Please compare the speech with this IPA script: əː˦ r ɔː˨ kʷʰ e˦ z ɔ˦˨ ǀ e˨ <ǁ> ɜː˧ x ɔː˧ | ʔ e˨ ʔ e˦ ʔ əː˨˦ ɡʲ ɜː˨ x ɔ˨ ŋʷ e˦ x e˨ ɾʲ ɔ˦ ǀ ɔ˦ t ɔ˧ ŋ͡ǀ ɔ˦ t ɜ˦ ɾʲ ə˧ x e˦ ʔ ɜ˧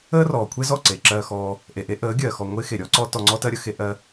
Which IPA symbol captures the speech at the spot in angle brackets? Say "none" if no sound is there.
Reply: ǁ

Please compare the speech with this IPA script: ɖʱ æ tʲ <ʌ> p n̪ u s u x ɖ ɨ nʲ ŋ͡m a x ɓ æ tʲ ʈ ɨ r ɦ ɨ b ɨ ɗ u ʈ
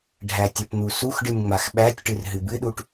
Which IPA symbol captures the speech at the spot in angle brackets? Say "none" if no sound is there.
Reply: ə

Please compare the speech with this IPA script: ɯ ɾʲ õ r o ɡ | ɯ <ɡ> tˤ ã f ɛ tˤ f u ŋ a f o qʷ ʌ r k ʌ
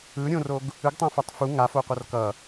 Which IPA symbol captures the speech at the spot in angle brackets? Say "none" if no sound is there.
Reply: ɡ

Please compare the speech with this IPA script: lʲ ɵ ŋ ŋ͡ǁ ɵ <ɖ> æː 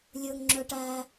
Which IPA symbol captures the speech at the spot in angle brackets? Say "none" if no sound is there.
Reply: ʈ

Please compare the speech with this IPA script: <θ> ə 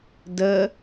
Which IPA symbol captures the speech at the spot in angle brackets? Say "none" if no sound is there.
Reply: d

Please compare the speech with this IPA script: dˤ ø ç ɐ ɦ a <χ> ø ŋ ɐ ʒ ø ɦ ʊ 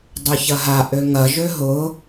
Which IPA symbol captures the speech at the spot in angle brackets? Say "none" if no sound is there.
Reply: ʔ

